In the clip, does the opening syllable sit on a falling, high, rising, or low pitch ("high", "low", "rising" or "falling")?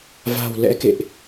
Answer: low